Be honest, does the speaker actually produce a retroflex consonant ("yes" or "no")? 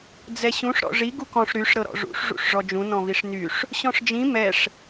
yes